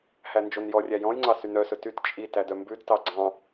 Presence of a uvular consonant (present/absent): absent